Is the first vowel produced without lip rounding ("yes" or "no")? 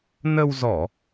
yes